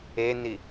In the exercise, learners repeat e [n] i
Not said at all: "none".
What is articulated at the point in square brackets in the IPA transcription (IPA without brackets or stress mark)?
n